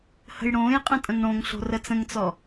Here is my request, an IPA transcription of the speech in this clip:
hə̤jɽõːjqʼə̃ tʼə̃ŋɽõŋɬo̤ rət͡sə̃ŋt͡sɔ

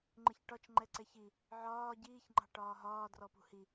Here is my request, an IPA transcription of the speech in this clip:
ŋ͡ǃɪçʈɒt͡ʃ ŋ͡ǃɛǀɛçi | ʕɒː ɟiːçŋ͡ǃɑ̤ ʈɒːɦɒː drɔpṳhi

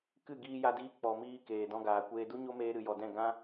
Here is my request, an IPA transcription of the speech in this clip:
kɨ˦˨ ɡiː˧ja˧diː˧ k͡pɔ˨miː˧ keː˨dɔ̃˧ɡaː˨kʷeː˧ du˦ɲo˦meː˧ ɾɨ˨jɔ˨dɛ̃˦˨ ɡã˦

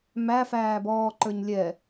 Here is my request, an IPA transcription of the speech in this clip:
mæ fæːbɔːǃə˞ɲ lʲɛ

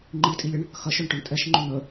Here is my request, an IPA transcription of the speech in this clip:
ŋ͡ǃitʼilʲʏɳ | xɐʃœɳʈœɳ tʼɛʃŋ͡ǃʏ n̪ə

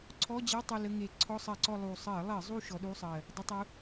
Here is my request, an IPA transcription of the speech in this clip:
ǀʰɔ˧˥˧d͡ʑe˧˥˧ tˤu˦˨lə˧˥˧ŋe˧˩˧ ǀʰɔ˧˥˧sˤɜ˧˩˧ǀɔ˦˨ lˠu˨˩ sˤɜ˧˩˧lˠɜ˧˩˧zˤu˦˨ ʃɔ˨˦ɗu˧˥˧sˤɜ˨˩ | dˤə˧˥˧tˤu˨˦

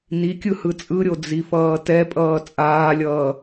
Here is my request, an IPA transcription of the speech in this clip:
nikʲɯ hɯt͡sʼɯɾʲo d͡zifʌːtɛpʼʌː t͡sʼaːlʲʌː

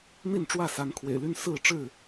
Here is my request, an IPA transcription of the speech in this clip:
n̪i˥˨nʈ͡ʂwä˥˨sa˨˦n kʰwḛ˨˩ɪ̯ly˦n sɹ̩˥˨ʈ͡ʂɻ̩˥˨

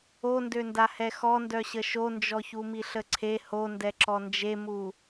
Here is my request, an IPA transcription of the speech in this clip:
ondønda hɛxɔndœɕə ʃond͡ʒɔçu miɬəǀʰe hondɛǁɔ nd͡ʒemu

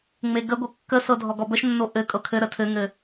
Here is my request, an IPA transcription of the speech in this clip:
ŋ͡meɡəɡʷɘ kːəsɤ dʱɔɡɔbəʃnːo ʔɘ kʼɤkʰɘɾə tʰɘŋɘ

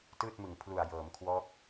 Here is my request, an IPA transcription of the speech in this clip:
tɯː˥˩t̚mɯ˨˩ŋ pʰlu˨˩a̯jɤː˩˦mkʰwɔː˦˥k̚

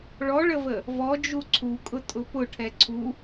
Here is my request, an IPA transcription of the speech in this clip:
ɭɔɭəvə | vɔd͡ʒu ǀʰukʼʊtʼʊ pʊʈʰɛ ǀʰu

